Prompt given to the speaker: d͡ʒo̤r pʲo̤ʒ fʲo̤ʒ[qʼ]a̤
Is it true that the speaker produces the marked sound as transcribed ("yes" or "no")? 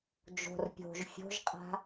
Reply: yes